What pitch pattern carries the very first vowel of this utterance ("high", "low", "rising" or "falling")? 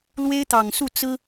high